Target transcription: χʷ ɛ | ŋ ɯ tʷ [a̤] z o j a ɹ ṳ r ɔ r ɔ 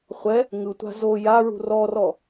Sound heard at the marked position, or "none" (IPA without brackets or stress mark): a̤